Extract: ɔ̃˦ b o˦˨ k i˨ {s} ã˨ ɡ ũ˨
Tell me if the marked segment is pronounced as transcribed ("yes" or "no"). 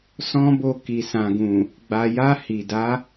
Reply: yes